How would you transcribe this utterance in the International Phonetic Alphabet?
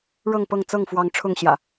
ɻɤ˥˨ŋpɤ˥˨ŋ t͡sɤ˥˨ŋfwɑ˨˦ŋ ʈ͡ʂʰʊ˥˨ŋɕjä̰˨˩

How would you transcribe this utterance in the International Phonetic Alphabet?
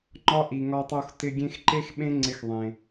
ŋ͡ǃɒ˧ ʔi˨ŋɒ˧tˤo˧xtɪ˧ ɡʲẽ˧xǃe˦xɓẽ˦ ŋ͡ǀɪ˧xðˤẽ˨

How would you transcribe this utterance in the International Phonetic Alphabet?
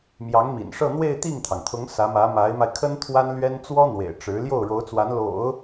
mjɑ˧˥ŋmḭ˨˩nʂɤ˥˧n̪we˥˧ɪ̯ t̪i˥˩ŋt̪ʰɑ˩ŋt̪ʰʊ˧˥ŋ sä˧˥mä˧˥ma˧˥ɪ̯ma˧ɪ̯ kʰə˥n t̪ʰwa˥nlɥɛ˥n t͡swɔ˥n̪wḛ˨˩ɪ̯ ʈ͡ʂɻ̩˧˥ ljo˥˩ʊ̯ɻo˧˥ʊ̯t͡swa˧˥n lo̰˨˩˦ʊ̯

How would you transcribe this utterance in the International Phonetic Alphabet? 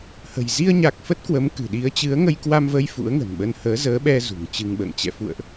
hə̤˨˩j zi˧ə̯ɲa˨˩k̚ fə˦˥t̚kwə˨˦mkɨ̤˨˩ɗi˨˦ə̯ t͡ɕɨ˨˦ə̯ŋə˧jkwa˧mvə˧j fṵ˧˥ə̯ŋə̤˨˩nɓə˧n həː˨˦zəː˨˦ɓɛ˧ zṳ˨˩ŋt͡ɕɨ˧ŋɓə̰ː˧˨ŋ t͡ɕɛ̰˧˨fṵ˧˨ə̯ʔ

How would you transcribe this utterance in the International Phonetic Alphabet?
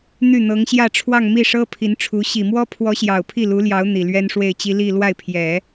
n̪y˥˩n̪ɤ˧˥ŋɕjä˥˧ ʈ͡ʂʰwɑ˥˧ŋmi˥˩ʂɤ˥ pʰi˧˥nʈ͡ʂʰu˧˥ ɕi˨˩mwɔ˥ pʰwɔ˧˥ ɕjɑ˨˩ʊ̯pʰi˥˩lu˧˥ljɑ˧˥ʊ̯ n̪i˨˩lɥɛ˥nʂwe˥˩ɪ̯t͡ɕi˥ li˥˧ lwa˥˩ɪ̯pʰjɛ˨˩˦

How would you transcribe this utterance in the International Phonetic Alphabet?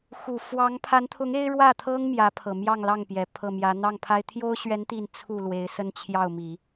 xu˨˩ fwɑ˧˥ŋpʰa˧˥nt̪ʰʊ˧˥ŋ e˥ɪ̯ɻwä˥˩t̪ʰɤ˥ŋ mjä˧˥pʰɤ˨˩ mjɑ˥˧ŋlɑ˥˩ŋpjɛ˨˩ pʰɤ˥˩mjä˧˥ n̪ɑ˥˩ŋpʰa˥ɪ̯ t̪ʰjo˥ʊ̯ɕɥɛ˧˥n t̪i˥˧n t͡sʰu˥˩ lwe˧˥ɪ̯sə˥nt͡ɕʰjɑ˥˩ʊ̯mi˨˩˦

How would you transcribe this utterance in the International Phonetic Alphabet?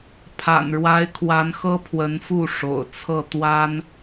pʰa̰˨˩nɻwa˧˥ɪ̯ kʰwa˧˥nxɤ˥pʰwə˧˥nfu˥˩ ʂo̰˨˩ʊ̯t͡sʰɤ˥˩ t̪wa˥n

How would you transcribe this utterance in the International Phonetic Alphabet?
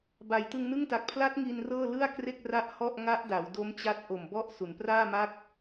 ba˩˦jtɯ˧ŋnɯ˥˩ŋta˨˩k̚ pʰla˦˥t̚ ŋi˧nrɤː˥˩ lɯ˥˩a̯kre˥˩k̚ ra˥˩ʔhɔ˥˩ʔ ŋa˦˥ʔ da˩˦wdo˦˥mt͡ɕa˦˥t̚ ʔo˨˩mbɔ˥˩ʔ su˩˦npraː˥˩ma˥˩k̚

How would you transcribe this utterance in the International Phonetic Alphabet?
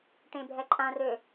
ʈẽbʱɛǃʼãrø

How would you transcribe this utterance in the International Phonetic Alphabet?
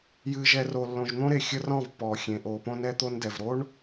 jɨː˨ʒɛ˨ ro˨lːõ˨ʒn̪õ˦ɾe˨ xʲə˦rɔ̃˦˨vpːɔː˨ xʲẽ˨ʔoː˨põ˦nɛ˦ t̪o˦ndɛ˨v ɾo˦ɳ

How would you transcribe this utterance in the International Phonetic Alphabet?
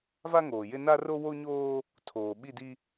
va˦ŋoː˨jɪ˦ na˦ro˦ wo˦ɲoː˦ | tʰoː˨ɓi˦˨di˦

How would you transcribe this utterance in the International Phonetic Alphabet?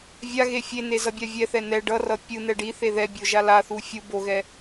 vʲaɣe fʲene zʌbʲavʲɛθɛ nɛ ɖʌrʌ pʲɯ n̪ɛɖiθe ðɛbʲo ʒalaθu fʲu boɣɛ

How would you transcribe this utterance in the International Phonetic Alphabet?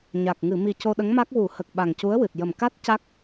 ɲa˨˩k̚ ŋɨ˨˩˨mi˨˩ co˧ɗə˧˥ŋma˦˥k̚ wu˨˩˦hə˨˩k̚ ɓa˨˩ŋcu˧˥ə̯wɨ˨˩t̚ jə˨˩mka˦˥t̚ ca˦˥k̚

